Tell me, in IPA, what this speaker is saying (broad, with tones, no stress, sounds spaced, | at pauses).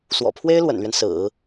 s w ɔ̰˨˩ pʰ w e˥ ɪ̯ l w ə̰˨˩ n l ɥ ɛ˦ n s ɹ̩˨˩˦